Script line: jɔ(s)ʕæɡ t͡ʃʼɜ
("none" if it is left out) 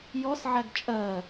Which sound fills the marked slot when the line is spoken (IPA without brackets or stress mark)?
s